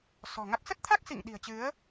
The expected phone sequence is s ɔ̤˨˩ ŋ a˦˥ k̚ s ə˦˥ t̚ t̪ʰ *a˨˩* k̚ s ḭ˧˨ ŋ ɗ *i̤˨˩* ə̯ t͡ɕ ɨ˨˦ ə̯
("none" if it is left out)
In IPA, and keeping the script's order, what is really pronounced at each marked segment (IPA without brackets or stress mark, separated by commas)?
a˦˥, i̤˨˩